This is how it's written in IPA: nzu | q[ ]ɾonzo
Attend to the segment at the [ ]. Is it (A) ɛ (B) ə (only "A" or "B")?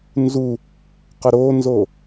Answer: B